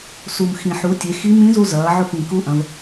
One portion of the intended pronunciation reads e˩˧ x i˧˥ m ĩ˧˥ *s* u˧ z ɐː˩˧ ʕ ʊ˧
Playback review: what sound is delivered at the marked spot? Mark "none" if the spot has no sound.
z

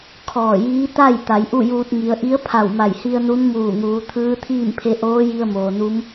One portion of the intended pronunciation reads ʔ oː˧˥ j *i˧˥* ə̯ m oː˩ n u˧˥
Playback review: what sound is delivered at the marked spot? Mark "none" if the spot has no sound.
i˧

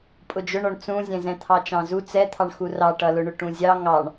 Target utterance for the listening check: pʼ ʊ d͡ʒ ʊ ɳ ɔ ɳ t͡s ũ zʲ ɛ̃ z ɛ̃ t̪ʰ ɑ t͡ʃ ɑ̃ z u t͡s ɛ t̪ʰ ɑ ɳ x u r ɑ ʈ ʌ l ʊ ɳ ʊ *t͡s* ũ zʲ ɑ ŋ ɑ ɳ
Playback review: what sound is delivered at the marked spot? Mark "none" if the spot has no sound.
ʈ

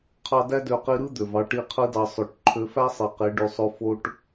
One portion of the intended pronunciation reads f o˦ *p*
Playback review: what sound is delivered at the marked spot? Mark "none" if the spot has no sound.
ʈ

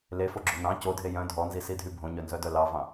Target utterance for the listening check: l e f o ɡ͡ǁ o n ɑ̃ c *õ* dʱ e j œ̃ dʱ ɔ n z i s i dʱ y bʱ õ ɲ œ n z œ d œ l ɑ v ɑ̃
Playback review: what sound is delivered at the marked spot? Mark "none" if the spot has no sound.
o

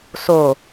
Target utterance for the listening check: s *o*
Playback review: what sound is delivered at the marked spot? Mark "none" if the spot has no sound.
o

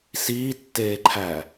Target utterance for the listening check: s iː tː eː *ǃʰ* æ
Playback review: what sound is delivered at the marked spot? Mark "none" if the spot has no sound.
ǃʰ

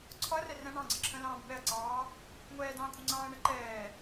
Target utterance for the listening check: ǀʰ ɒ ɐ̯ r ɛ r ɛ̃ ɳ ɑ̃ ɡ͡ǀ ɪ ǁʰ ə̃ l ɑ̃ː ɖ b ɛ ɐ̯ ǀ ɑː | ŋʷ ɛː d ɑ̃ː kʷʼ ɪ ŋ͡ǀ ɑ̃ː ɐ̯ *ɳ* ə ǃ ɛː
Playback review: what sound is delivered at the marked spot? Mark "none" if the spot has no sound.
ɳ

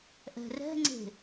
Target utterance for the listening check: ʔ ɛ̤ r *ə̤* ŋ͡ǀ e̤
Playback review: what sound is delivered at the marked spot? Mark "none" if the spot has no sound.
ɛ̤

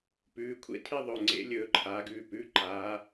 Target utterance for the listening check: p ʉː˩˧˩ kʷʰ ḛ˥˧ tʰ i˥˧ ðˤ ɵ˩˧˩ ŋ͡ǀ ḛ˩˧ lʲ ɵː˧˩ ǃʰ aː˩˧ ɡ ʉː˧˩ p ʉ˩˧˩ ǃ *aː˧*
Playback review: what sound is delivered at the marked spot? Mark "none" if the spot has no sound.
aː˩˧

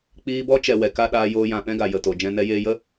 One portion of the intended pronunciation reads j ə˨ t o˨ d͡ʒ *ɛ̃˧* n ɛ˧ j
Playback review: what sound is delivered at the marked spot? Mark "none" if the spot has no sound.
ɛ̃˧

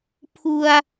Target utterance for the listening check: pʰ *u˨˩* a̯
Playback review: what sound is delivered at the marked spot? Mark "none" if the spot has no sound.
u˧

